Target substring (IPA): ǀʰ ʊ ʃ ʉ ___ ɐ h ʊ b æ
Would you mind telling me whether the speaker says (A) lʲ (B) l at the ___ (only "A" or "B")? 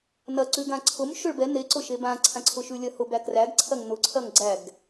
A